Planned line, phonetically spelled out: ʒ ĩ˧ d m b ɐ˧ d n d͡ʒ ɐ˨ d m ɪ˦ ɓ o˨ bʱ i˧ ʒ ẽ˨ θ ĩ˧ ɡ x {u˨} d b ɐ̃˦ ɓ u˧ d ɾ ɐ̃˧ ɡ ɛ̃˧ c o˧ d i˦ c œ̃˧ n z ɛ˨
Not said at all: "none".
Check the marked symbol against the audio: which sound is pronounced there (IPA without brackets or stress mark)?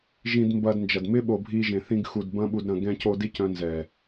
u˨